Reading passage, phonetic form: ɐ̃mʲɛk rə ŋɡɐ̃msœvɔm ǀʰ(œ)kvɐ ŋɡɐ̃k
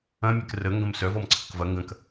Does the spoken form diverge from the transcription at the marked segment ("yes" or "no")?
yes